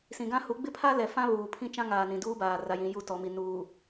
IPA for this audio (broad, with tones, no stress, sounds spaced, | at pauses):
s ĩ˨ ɡ ã˦ h u˨˦ ɡ͡b ɪ˦ pʰ a˦ l ɛ˨ f ã˦ β uː˨ pʰ ĩ˦ t͡ʃ ã˦ ŋ aː˨ n ĩ˨ d uː˦ b aː˨ r a˦ j ĩ˦ j u˦˨ t ɔ˨ m i˨ n uː˨